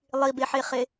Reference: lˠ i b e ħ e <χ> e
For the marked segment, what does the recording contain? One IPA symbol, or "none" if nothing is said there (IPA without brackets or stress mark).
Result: χ